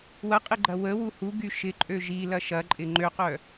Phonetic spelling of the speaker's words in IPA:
w ɐ qʼ ɪ ɡ͡ǃ ɐ w ə w u h u ɡ y ʃ ɪ ǃʼ ø ʒ i l ɐ ʃ ɐ ǃʼ ɪ ŋ͡ǃ ø q œ

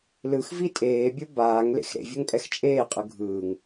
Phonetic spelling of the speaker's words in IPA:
l ɯ x v i tʼ eː bʲ o b aː ŋ l ḛ x ɾ ḛ vʲ ɤ ŋ pʼ ɛ x t͡ʃʼ eː qʼ ɯ ɡʱ ɯː ŋ

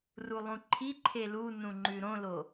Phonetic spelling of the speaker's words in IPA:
r u lˠ ũ ǃʰ i ǃʰ e l u n ũ ŋ͡ǃ ʉ ɾ õ l o

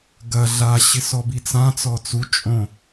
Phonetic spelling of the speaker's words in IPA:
ɡ ɐ ɮ a ɕ ɪ s ɔ b i t͡s ã t͡s ɔ t͡s u t͡ʃʼ õ

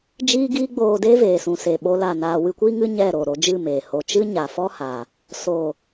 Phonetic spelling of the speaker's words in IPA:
d͡ʒ iː˦ ɡ iː˦ ɡ͡b oː˧ d eː˦ v eː˨ s ũ˨ s e˨ ɓ o˧ l a˦˨ n aː˧ w ɨ˧ kʷ iː˦ ŋ ɨ˦ ɲ ɛ˦˨ ɾ o˨ ɾ o˧ d͡ʒ ɨ˦˨ m eː˨ h o˨ t͡ʃ ɨ˦ ɲ a˨ f ɔ˦ h a˨ | s oː˨

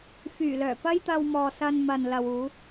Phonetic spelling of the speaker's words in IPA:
f yː˨˩ l œː˨˩ p ɐ˥ j t̪ ɐ˧ w m ɔː˨ s ɐ˧ n m ɐ˨ n l ɐ˨ w uː˨˧

